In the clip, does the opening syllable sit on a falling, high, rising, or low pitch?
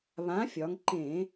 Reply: rising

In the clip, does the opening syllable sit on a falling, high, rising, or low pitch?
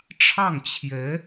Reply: falling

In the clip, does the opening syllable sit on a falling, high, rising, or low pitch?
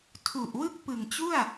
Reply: low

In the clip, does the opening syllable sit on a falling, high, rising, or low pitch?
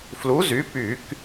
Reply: rising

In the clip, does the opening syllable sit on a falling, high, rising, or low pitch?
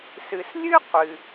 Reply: low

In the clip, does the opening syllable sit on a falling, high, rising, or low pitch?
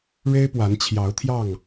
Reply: high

